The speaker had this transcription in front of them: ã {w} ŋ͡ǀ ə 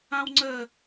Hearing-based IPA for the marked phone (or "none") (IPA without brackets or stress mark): w